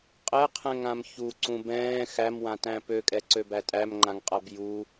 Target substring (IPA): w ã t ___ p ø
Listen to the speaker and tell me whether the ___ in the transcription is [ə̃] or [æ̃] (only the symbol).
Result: æ̃